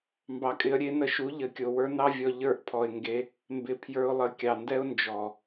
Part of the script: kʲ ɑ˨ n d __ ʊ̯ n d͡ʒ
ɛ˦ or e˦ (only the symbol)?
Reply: ɛ˦